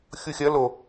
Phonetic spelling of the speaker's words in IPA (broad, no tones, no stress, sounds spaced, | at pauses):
xʲ u xʲ ɐ l o